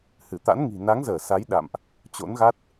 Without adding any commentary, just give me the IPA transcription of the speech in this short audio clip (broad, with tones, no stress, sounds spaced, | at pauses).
h ɨ˧˩ t̪ a̰˧˥ n ŋ i̤˨˩ n a˨˦ ŋ z əː˧˩ s a˨˦ j ɗ a̰˧˨ m ʔ | t͡ɕ o̰˧˥ n ɣ a˦˥ t̚